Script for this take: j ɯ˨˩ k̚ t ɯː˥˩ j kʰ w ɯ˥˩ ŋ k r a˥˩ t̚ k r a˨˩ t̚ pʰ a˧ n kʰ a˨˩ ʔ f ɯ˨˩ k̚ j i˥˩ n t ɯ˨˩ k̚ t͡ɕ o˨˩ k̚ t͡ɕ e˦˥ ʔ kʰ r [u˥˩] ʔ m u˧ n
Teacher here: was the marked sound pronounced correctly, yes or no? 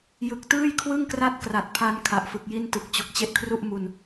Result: yes